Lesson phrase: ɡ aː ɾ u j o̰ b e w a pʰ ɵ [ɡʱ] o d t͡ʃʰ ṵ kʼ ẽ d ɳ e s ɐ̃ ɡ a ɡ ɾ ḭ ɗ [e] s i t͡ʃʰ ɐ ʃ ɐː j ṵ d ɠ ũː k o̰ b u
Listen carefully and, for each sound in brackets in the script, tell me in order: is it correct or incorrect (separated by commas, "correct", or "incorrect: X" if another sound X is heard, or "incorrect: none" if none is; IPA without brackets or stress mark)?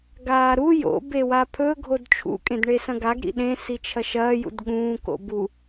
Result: correct, incorrect: ẽ